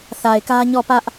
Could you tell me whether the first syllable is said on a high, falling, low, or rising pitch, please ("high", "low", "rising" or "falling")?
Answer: low